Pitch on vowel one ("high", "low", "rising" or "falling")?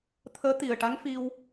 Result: rising